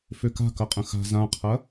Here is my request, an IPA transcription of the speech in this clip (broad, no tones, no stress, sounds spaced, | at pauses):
f ø k a̤ k ɐ qʼ ə̃ x a̤ z ã qʰ ɐ